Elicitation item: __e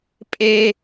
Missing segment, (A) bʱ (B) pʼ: B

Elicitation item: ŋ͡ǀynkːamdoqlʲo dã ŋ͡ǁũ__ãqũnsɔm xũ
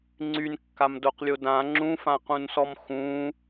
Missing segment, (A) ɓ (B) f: B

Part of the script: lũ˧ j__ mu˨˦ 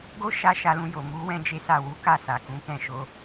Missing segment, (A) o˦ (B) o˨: B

